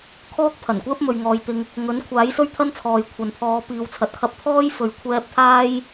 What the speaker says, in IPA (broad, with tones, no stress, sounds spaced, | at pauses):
kʰ ɔː˥ k̚ pʰ ɐ˨˩ n kʷ ɛː˥ p̚ m ɵ˨ ɥ ŋ ɔː˨˧ j t̪ ɪ˧ ŋ | ŋ ɵ˨˥ n kʷʰ aː˨˥ j s ɵ˥ ɥ t̪ʰ ɐ˥ n t͡sʰ ɔː˨ j kʷʰ ɐ˨ n pʰ ɔː˨˧ p iː˨˧ w t͡sʰ ɐ˨ t̚ kʰ ɐ˧ p̚ t̪ʰ ɔː˥ j f ɵ˨ ɥ kʷʰ ɛː˧ p̚ t̪ʰ aː˥ j